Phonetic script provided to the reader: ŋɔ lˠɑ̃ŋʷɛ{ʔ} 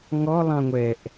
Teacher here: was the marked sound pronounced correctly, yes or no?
yes